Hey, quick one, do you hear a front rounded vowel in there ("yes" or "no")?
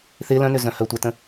yes